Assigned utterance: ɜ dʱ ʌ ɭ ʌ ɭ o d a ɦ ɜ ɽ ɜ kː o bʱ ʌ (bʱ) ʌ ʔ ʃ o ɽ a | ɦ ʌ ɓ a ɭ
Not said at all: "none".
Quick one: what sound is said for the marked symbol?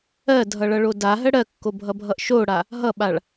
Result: bʱ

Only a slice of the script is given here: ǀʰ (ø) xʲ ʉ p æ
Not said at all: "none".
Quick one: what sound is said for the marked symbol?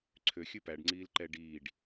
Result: ø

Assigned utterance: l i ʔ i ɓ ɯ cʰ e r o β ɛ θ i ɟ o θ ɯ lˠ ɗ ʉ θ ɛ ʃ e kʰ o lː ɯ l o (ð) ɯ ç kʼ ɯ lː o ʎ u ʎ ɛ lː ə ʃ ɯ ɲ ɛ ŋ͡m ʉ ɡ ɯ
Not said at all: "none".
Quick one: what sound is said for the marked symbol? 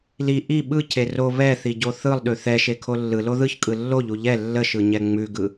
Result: ð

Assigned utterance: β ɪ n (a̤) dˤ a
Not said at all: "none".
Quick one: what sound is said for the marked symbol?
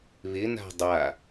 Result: a̤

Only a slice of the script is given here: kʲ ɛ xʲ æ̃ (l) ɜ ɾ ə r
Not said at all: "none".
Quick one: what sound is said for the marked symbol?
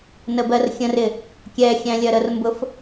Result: lʲ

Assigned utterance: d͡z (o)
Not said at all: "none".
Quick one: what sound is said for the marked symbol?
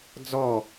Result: ɔ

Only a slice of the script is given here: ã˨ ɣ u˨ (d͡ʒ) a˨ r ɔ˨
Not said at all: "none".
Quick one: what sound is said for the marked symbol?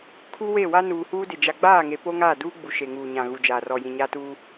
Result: d͡ʒ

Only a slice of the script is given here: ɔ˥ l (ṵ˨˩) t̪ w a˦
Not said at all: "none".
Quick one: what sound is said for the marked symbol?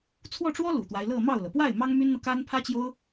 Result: ṵ˨˩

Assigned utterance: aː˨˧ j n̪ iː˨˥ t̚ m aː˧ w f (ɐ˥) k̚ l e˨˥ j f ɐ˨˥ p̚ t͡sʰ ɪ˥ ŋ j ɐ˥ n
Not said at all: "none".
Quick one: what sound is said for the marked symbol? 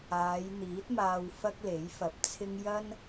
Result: ɐ˥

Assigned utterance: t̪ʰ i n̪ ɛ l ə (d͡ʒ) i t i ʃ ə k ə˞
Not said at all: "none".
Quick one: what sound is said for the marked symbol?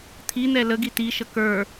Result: ɡ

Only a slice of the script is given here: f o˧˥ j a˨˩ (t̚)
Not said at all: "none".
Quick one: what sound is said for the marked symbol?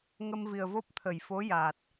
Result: t̚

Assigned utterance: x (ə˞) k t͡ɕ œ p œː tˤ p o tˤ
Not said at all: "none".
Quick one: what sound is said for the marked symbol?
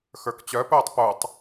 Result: ə˞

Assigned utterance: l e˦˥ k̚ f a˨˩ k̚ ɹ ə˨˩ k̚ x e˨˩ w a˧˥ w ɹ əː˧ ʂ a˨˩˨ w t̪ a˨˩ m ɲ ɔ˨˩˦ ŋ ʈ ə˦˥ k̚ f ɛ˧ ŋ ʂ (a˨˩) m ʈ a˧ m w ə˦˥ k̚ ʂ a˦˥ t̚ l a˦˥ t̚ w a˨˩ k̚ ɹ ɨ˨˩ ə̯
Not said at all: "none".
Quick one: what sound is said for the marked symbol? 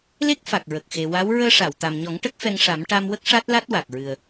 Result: a˨˩˦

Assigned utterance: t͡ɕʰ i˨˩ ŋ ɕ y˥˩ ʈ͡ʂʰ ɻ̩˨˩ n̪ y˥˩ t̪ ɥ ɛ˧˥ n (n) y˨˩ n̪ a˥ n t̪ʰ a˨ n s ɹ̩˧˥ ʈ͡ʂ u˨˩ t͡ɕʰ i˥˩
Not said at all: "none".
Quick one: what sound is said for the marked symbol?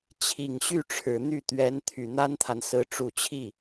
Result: t̪ʰ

